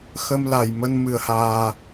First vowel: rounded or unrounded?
unrounded